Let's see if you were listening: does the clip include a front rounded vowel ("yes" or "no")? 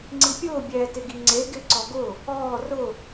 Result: no